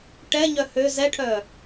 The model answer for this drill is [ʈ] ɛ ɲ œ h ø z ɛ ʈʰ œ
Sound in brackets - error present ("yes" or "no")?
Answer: no